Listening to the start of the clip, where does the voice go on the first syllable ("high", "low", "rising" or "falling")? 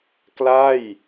falling